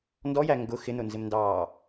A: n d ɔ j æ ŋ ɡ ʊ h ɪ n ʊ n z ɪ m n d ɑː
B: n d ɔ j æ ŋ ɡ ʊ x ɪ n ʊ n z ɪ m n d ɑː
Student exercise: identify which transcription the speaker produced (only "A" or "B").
B